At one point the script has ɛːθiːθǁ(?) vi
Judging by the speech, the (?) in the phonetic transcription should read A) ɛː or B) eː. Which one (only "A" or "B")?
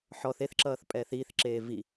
B